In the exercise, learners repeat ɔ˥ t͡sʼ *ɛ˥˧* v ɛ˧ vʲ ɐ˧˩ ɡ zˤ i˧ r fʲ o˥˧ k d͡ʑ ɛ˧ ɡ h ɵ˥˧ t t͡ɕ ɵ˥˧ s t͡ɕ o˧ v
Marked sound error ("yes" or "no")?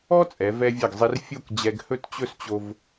yes